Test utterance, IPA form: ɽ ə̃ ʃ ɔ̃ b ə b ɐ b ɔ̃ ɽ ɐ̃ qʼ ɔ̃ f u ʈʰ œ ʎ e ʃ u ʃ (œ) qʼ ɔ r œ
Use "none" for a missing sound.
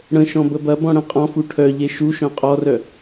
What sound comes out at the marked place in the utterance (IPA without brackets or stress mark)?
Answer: œ̃